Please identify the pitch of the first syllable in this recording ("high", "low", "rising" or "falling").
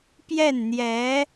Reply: falling